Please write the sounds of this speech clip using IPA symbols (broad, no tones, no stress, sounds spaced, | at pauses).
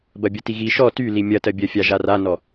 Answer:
b ɐ bʲ ɐ t i ɣ i ʃ ɔ t y l i mʲ ɐ t ɜ bʲ ɜ fʲ a ʒ a r a n ɔ